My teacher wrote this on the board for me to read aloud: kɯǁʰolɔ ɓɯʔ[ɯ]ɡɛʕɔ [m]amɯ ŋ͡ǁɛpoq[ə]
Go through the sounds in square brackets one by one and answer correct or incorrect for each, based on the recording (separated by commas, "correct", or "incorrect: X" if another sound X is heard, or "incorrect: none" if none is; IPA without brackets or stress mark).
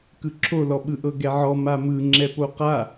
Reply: incorrect: ɤ, correct, incorrect: a